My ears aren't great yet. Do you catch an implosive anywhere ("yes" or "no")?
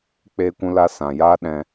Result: yes